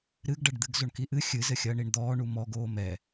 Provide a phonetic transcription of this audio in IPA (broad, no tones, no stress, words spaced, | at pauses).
ɾɨɡɖɐɖd̪ɨɡ zoɳkiʔɨ xʲɨzɘxʲɐːɳ iɳd̪ɔː ɳumɔɡ oːmɛ